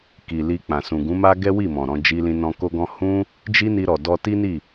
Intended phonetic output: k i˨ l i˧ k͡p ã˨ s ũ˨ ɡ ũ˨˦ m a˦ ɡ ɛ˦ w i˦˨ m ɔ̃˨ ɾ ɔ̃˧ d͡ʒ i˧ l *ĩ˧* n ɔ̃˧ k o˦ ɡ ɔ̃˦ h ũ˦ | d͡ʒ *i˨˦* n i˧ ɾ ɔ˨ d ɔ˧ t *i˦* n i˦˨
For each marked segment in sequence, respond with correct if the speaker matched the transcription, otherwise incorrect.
correct, incorrect, correct

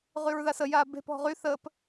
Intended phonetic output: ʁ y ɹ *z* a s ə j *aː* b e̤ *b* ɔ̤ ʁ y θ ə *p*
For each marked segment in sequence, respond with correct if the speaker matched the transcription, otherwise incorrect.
incorrect, correct, incorrect, correct

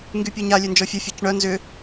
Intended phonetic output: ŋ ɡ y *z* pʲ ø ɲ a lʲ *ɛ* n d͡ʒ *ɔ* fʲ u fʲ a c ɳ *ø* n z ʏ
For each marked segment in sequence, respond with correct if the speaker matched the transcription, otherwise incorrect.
incorrect, incorrect, correct, incorrect

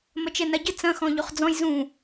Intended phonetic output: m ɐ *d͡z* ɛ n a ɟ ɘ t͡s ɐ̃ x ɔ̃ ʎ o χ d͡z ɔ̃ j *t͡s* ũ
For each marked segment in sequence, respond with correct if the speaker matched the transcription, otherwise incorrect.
incorrect, incorrect

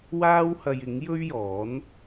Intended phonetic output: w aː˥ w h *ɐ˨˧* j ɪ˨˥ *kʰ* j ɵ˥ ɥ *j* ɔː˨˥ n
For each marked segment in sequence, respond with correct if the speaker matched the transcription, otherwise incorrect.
incorrect, incorrect, correct

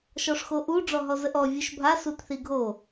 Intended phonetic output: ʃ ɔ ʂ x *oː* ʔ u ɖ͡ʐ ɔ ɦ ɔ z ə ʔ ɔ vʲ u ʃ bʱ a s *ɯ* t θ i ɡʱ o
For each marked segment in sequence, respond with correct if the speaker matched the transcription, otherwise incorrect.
incorrect, incorrect

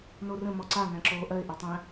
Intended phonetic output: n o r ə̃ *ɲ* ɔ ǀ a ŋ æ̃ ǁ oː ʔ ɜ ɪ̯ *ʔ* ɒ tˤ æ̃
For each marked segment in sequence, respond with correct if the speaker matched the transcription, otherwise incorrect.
incorrect, correct

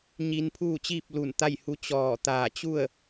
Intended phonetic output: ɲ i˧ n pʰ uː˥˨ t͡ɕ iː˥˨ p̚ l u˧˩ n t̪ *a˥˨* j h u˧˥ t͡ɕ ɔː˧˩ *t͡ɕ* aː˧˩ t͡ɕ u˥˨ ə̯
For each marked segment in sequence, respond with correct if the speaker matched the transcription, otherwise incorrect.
correct, incorrect

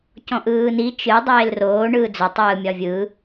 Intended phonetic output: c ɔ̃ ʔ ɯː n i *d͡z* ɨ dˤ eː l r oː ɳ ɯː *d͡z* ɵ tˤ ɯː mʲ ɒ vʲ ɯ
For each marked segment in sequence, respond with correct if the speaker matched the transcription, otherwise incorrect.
incorrect, correct

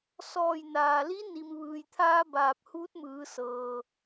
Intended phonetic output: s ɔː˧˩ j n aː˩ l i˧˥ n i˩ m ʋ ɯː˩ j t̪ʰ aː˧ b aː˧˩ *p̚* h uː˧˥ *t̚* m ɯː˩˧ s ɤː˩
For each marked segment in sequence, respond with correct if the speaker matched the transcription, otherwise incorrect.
correct, correct

